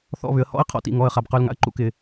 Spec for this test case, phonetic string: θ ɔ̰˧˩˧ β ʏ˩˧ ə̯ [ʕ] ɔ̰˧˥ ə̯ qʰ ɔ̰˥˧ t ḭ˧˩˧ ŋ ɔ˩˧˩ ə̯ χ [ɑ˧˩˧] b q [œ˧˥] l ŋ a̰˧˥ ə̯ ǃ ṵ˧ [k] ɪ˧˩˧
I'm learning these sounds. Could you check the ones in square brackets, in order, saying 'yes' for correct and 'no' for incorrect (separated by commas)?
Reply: no, no, no, yes